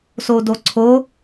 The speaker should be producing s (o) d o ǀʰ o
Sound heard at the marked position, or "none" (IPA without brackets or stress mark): o